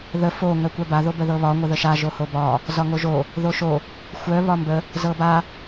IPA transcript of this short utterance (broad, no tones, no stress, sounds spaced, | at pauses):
ð ə f o ŋ œ kʷ œ b a ð o b ə ð ɤ β ɒ ŋʷ ə ð ə ʃ a ʒ o h o b ɒ | z ɒ ŋ o ʒ o | ð o ʃ o | xʷ œ β ɒ m b ə | z ɤ b a